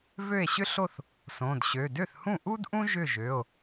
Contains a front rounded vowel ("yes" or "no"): yes